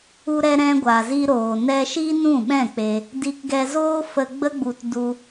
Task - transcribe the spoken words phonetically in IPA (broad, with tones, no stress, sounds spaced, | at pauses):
u˧ ɾ ɛ˧ ɾ ɛ̃˧ ɡʷ a˨ z i˧ ɾ oː˨ n ɛ˧ ʃ i˦ n ũ˦˨ ɓ ɛ̃˦˨ k͡p e˧ | d i˧ k ɡ ɛ˧ z oː˦ f ə˧ ɡ͡b ə˦ ɡ͡b u˧ t d u˧